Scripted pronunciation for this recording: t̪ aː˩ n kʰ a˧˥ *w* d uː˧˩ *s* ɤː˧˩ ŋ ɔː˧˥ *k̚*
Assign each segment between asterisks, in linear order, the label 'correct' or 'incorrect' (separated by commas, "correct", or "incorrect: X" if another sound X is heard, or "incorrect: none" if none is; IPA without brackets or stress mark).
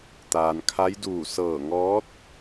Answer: incorrect: j, correct, incorrect: t̚